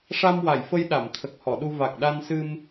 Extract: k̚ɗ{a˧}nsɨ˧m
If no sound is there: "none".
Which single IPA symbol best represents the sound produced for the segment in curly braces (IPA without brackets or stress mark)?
a˧